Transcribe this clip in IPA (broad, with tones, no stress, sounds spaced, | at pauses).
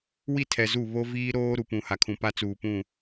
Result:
w i˦˨ tʰ ɛ˨ z u˦˨ β o˦ v iː˦ ɾ oː˦ ɾ u˨ p ũ˨ h a˨ kʰ ũ˨ p a˦ t͡s uː˨ p ũ˦˨